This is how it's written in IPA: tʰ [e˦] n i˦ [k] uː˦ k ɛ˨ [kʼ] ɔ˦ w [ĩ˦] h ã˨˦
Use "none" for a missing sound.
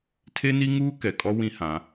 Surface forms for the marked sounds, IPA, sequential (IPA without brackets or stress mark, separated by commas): e˦, ŋ, kʼ, ĩ˦